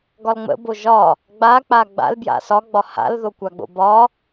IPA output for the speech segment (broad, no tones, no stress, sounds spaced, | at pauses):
ɡ ɒ l ŋ͡m ə̰ b o ʒ ɒ | ɡ͡b a k͡p a ɡ͡b a̰ l b j a̰ s ɒ ɡ͡b ɒ h a̰ l ð o kʷ a ɡ͡b o̰ b ɒ